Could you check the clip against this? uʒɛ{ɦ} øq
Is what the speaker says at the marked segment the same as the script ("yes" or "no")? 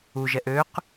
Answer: no